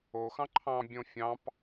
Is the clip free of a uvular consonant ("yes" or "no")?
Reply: yes